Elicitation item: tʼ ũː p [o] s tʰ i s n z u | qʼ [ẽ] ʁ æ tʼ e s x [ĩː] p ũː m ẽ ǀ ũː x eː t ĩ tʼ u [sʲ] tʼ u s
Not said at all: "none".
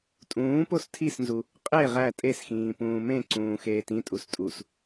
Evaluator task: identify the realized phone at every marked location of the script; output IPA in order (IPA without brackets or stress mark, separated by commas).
o, e, ĩː, s